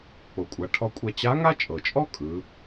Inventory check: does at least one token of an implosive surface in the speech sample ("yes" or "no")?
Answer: no